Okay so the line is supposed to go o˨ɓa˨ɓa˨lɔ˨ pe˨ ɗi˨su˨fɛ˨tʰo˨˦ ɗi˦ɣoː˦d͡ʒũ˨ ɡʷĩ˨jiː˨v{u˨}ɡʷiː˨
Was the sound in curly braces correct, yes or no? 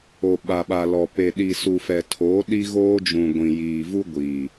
no